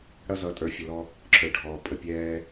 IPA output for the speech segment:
ɽ ʌ˦ z ʌ˨˦ tʼ ə˞˨ fʲ ʌ˨ l ɔ˦ | ǁʰ ə˞˨ ɖʱ ɔː˨ pʼ ə˨ pʲ ɛː˦

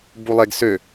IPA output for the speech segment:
b u lˠ e ɡ s ø

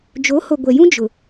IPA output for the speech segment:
d͡ʒ o˨˦ h o˨ ɡʷ ɛ˨ j ũ˦ d͡ʒ ʊ˨

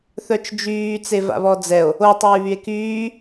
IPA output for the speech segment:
θ œ t͡ʃ d͡ʒ yː t͡s e v a̰ β ɔ d͡z ɛ o̯ | o tˤ yː β y e̯ k yː

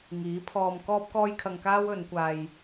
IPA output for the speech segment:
ŋ iː˨˥ pʰ ɔː˧ m k ɔː˥ p̚ k ɔː˥ j kʰ ɐ˧ ŋ k aː˥ w ɵ˨˧ n kʷ aː˧ j

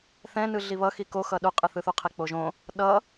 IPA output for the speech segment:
θ ɛ̃ n ɯ ɮ i β ʌ x i k o x ʌ ɗ u qʼ ɯ θ ɯ θ u qʰ e k͡p o ʒ õ | ɗ ʌ

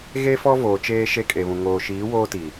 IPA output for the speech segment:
ɣ e˦ f ɔ˦ v oː˨ t͡ʃ eː˦ ʃ e˦ kʼ e˨ β ũ˨ ŋ oː˨ ʃ iː˨˦ w oː˦ t i˨

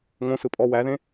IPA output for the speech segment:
ŋ õ s ɯ pʼ ɔ w æ ð ẽ

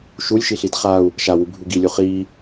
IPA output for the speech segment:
ʃ u lʲ ʃ i ɬ i d χ a u̯ | ʃ a w u bʱ u ɡ i lʲ u χ i

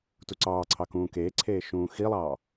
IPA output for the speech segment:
t u ǀ ɑː ǀʰ ɑ k ũː k eː ǀʰ eː ʃ ũː x i lˠ ɑː

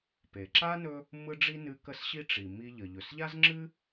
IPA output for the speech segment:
p e˩ ǁ a˥ n ɵ˥ | m ɯ˥ ɖ͡ʐ i˥ n ɨ˧ k ə˥ s ɕ i˥ ʈ͡ʂ i˩ m i˧ ʎ ə˩ ʎ ɵ˩ s ʎ a˥ z ŋ͡ǁ ɨ˥

